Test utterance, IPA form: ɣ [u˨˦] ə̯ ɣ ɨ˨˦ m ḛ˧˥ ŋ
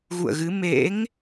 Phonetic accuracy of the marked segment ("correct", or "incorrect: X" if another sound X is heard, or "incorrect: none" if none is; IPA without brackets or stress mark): incorrect: ṵ˧˨